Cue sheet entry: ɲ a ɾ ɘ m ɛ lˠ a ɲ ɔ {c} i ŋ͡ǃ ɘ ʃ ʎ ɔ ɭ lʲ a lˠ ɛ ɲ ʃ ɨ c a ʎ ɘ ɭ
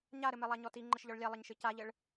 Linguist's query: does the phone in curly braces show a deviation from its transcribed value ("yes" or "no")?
yes